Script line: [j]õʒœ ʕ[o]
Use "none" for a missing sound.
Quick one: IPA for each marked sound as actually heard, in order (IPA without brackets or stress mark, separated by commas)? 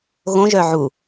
ɣ, u